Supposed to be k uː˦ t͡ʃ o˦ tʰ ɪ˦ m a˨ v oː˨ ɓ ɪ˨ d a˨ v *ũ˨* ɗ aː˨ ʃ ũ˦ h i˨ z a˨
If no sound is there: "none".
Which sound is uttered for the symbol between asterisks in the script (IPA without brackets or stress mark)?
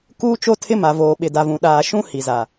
ũ˨